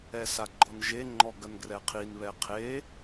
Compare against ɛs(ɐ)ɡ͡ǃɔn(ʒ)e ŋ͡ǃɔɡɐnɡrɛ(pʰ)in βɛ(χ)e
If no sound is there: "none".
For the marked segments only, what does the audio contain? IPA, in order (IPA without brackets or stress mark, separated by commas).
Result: a, ʒ, qʰ, qʰ